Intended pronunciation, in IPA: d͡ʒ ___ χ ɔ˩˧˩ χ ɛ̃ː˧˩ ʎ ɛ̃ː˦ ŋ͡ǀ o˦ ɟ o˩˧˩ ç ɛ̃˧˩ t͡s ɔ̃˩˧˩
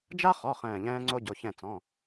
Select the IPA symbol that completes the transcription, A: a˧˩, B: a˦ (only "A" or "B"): B